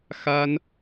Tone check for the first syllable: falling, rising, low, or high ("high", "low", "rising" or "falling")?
high